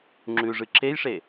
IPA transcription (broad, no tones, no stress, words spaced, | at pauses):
ŋ͡ǁʉʐɨ ǁejʂe